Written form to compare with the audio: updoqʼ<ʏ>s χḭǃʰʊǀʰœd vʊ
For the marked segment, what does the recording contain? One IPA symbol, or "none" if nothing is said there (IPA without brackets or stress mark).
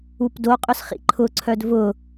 ʏ